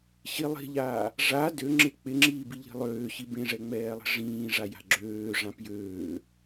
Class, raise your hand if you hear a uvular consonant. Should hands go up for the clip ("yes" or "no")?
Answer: no